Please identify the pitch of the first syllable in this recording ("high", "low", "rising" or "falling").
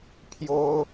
high